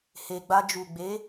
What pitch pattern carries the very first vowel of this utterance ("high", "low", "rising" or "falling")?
low